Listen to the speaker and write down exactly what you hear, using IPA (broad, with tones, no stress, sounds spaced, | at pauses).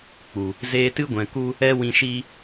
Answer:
k͡p u˨ | z eː˧ t ɨ˦ ɡʷ ɛ̃˨ k u˦ | ɛ˦ w ĩ˧ ʃ iː˦